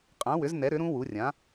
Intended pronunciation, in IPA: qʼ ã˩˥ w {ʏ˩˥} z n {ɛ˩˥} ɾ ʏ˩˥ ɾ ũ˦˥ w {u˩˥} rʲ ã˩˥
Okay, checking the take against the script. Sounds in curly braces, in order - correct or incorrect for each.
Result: correct, correct, correct

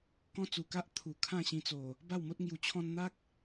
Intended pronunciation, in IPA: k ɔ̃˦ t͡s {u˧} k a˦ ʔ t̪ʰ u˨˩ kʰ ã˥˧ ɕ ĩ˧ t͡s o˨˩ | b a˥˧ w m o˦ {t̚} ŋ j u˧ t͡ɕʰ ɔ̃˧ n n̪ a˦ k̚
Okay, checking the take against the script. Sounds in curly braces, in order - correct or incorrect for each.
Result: incorrect: u˨˩, correct

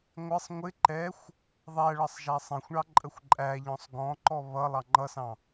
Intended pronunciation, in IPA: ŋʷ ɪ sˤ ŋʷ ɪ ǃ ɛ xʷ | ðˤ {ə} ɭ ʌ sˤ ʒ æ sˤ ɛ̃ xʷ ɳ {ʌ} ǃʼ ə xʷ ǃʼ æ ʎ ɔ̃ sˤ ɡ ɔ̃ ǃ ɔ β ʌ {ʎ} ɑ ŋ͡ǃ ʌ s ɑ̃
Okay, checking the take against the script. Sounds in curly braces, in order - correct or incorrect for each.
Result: incorrect: æ, incorrect: ɑ, incorrect: lˠ

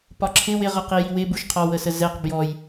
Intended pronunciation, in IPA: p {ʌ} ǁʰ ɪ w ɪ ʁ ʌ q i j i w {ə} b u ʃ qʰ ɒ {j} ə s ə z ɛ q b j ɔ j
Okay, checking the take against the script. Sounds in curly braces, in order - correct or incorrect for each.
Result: incorrect: ɒ, incorrect: ɪ, incorrect: w

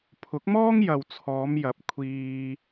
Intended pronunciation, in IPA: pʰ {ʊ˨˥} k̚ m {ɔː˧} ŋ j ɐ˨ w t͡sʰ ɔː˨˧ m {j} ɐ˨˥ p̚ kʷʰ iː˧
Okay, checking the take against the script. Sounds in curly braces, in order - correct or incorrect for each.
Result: correct, incorrect: ɔː˥, correct

